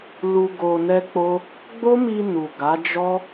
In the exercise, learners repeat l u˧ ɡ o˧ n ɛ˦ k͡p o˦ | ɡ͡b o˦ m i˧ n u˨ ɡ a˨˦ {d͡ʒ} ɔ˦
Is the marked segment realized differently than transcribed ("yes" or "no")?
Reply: no